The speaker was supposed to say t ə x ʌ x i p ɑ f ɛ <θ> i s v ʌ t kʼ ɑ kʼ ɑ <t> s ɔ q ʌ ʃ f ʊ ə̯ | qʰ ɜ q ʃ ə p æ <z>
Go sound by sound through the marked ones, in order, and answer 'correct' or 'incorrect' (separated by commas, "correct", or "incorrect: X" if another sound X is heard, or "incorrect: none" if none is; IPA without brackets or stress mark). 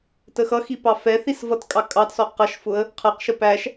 correct, correct, incorrect: ʃ